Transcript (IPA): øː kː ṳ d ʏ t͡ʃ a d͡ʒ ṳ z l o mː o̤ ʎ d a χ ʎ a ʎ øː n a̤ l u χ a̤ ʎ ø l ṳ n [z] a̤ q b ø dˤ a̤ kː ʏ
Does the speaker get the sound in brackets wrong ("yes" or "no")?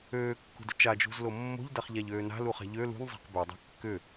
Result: yes